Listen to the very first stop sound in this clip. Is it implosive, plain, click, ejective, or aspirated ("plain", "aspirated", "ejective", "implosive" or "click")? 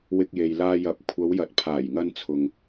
plain